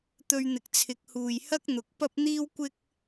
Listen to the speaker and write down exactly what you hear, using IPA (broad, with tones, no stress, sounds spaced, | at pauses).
t̪ ɵ˧ ɥ n̪ ɪ˨ k̚ t͡sʰ ɪ˨˥ k̚ h uː˨ j h ɐ˥ k̚ n̪ ʊ˨ k̚ p ɐ˥ p̚ n̪ iː˥ w kʷ ɪ˥ k̚